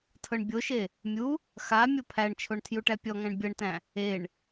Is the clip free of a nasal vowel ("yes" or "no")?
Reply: no